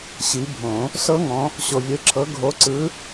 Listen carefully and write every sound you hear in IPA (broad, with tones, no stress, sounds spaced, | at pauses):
ɕ i˨˦ bʱ õ˨˩˦ | s ɤ˦˥ ŋ ɔ̃˨˦ | ɕ o˨ vʲ ɯ˨˦ ǁʰ ɤ˨˦ ɡʱ o˨˦ ǀ ɯ˨˦